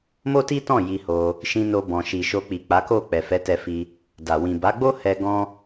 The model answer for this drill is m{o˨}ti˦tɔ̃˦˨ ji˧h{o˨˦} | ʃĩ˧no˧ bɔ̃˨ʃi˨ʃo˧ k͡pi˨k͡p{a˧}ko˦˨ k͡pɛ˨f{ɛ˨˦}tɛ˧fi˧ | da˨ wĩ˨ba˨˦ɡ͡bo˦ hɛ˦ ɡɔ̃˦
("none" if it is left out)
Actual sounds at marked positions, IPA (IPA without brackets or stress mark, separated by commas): o˦, o˧, a˨˦, ɛ˨˦